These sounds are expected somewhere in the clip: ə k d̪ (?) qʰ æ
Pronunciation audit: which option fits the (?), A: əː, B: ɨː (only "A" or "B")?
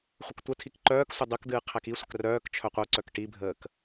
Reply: B